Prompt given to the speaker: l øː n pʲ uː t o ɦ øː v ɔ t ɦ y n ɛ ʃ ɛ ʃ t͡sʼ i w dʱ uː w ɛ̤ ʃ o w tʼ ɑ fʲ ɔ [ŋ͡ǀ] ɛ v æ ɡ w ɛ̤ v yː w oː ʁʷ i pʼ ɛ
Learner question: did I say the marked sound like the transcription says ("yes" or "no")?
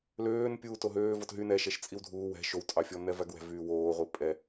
no